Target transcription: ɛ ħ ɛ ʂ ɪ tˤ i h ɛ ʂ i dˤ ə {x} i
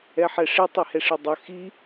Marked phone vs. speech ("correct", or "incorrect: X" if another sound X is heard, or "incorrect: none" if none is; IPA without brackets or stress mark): correct